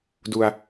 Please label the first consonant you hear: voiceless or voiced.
voiced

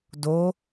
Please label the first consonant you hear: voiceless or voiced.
voiced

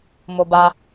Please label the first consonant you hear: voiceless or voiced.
voiced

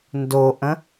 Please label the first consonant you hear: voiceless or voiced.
voiced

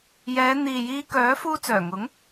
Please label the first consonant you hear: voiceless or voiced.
voiced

